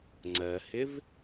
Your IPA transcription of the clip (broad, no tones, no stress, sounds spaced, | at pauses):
ŋ͡ǀ ɜ h ɪ v